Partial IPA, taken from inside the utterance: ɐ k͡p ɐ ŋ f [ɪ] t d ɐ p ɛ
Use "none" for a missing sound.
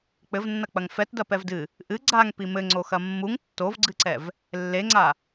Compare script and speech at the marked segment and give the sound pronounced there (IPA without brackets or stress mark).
ɛ